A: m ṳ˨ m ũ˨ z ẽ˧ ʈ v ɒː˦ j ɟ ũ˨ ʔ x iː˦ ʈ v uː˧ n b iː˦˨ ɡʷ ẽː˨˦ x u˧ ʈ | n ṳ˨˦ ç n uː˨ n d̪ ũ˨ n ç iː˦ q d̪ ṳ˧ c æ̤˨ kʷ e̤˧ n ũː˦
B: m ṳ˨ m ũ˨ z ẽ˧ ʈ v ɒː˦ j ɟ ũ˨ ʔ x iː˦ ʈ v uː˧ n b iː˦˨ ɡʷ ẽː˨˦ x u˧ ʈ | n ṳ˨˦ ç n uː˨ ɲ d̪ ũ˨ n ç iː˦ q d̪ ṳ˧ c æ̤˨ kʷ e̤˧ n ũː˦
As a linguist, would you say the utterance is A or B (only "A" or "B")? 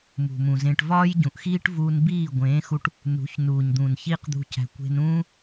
B